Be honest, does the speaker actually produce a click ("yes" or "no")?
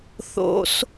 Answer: no